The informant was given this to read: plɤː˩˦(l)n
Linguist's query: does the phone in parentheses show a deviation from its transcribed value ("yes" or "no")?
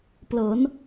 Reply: yes